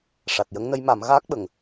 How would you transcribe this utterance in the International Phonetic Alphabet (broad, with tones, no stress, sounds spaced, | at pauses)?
ʂ a˨˩ t̚ j ə˧˥ ŋ n ə˧˥ j m a˨˩˦ m ɣ aː˦˥ k̚ ɓ ə˨˩˨ ŋ